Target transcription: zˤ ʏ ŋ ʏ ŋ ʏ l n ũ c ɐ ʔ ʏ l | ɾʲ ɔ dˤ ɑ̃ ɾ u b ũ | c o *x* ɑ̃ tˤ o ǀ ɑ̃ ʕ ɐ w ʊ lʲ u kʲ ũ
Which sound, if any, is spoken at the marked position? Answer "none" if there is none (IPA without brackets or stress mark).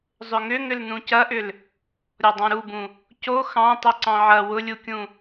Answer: x